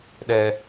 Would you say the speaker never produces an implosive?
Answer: no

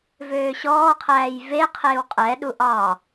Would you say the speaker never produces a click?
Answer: yes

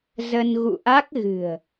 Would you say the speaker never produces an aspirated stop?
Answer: yes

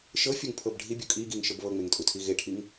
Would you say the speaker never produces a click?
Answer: yes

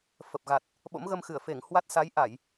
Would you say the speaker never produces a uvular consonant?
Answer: yes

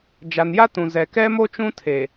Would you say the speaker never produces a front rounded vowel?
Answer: yes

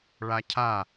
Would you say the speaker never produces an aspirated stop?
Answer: no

